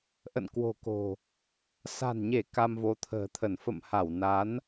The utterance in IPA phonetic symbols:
ʔ ə̰˧˨ n k w o̤˨˩ k o̤˨˩ | s a̤˨˩ n ɲ e˧˩ k a˧ m v o˨˦ t̪ʰ ə̤ː˨˩ t̪ʰ ə˧˩ n f ə̰˧˨ m h a˧˩ w n a˨˦ n

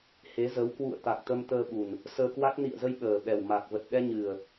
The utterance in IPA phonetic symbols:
h e˨˦ z ə˨˦ w k w ṵ˧˨ ə̯ t̪ a˨˩ k̚ t̪ ə˧ m t̪ əː˧ ɓ u˨˩ n | s əː˧ k w a˦˥ k̚ n ḭ˧˨ ə̯ z ə˧ j ɓ əː˨˩ ɓ ɛ˨˩ w m a˨˩ k̚ v ə˨˩ t̚ ɗ ɛ˧ ɲ ɨ˨˩ ə̯

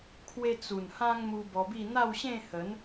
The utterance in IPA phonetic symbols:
kʰ w e˦ t͡s u˨˩ n h ã˦ ŋ m u˧ b ɔ˧ b i˥˧ n̪ a˥˧ w ɕ ẽ˥˧ h ə˨˦ n

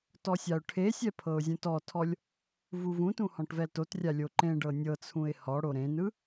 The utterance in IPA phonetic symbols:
t ɔ sʲ a ʊ̯ ʈʰ e sʲ ɛ pʰ ɤ ʊ̯ zʲ ũ t ɔ tʰ ɔ lʲ | v u v ũ t ũ h ɔ̃ ʈ v ɛ l t o t rʲ a lʲ o ǃ ẽ ɖ ɤ nʲ ɤ t͡sʰ ũ ɪ̯ h ɔ ɽ o ɾ ẽ n ɯ

